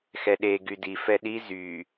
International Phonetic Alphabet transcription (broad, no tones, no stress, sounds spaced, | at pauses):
x ɛ ɗ e ɡ y d i f ɛ ɗ i z y